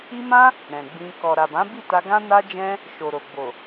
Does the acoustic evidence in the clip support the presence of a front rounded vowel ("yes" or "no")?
no